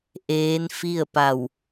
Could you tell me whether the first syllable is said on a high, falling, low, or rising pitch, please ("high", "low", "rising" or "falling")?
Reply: rising